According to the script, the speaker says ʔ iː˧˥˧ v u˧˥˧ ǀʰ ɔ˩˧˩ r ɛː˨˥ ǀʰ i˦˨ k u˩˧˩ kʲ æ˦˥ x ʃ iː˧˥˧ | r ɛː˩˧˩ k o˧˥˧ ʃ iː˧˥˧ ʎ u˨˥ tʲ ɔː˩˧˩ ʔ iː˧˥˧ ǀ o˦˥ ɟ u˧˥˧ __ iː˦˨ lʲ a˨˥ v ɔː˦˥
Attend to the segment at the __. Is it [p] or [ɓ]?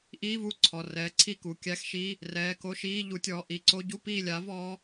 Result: p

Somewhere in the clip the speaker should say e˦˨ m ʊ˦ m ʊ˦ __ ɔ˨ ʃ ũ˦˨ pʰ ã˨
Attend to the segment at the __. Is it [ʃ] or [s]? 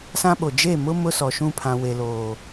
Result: s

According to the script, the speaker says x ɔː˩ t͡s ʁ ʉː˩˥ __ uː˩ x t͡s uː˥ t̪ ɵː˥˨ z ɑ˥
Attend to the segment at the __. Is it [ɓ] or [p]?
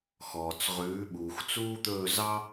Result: ɓ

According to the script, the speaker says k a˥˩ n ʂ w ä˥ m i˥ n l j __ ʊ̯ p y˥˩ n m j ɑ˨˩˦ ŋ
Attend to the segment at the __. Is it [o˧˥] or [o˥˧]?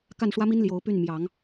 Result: o˧˥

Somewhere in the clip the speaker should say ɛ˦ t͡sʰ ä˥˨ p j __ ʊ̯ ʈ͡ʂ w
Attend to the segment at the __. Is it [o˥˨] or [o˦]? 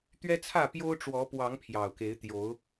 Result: o˦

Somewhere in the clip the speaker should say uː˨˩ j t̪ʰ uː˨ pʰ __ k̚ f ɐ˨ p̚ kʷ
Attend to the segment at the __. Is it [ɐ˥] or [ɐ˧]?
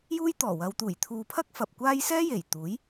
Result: ɐ˥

